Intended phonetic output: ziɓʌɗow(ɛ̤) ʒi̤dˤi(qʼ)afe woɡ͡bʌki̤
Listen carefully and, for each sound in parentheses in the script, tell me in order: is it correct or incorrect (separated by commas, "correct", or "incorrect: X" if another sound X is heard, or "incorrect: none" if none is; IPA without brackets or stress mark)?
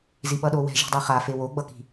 correct, incorrect: χ